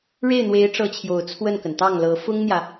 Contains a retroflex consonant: yes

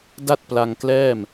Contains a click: no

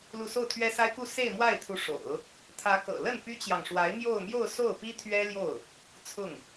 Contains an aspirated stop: yes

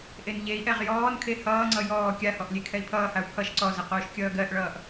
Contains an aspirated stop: yes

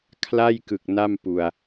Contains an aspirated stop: yes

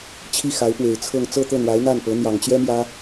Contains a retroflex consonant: no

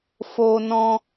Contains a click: no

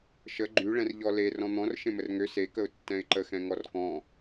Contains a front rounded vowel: yes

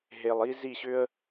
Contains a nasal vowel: no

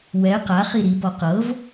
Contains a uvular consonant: yes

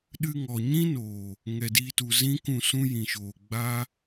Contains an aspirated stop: no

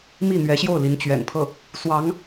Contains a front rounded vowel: no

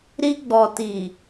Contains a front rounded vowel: no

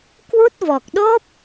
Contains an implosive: yes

